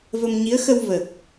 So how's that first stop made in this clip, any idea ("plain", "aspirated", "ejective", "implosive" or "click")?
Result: plain